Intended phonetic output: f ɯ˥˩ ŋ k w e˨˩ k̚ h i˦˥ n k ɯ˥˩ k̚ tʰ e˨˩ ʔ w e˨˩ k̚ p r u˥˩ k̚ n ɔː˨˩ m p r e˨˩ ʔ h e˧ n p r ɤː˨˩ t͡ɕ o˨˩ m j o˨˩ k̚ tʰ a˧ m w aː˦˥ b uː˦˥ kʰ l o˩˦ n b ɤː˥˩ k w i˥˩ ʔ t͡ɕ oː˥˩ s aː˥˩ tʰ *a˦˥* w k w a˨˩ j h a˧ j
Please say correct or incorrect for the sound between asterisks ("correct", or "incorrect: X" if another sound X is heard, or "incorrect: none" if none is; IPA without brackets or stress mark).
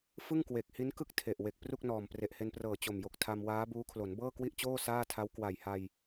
correct